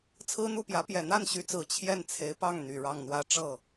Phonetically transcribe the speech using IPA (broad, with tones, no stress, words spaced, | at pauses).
t͡sʰɹ̩˥n̪u˥˩pjä˧˥ pjɛ˨˩n̪a˥˩nɕy˧˥t͡sɹ̩˨˩ t͡ɕʰjɛ˥˩nt͡sʰe˧˥ɪ̯pɑ˥˩ŋ n̪y˨˩ɻɑ˥˩ŋn̪wä˥ ʈ͡ʂɤ˥˩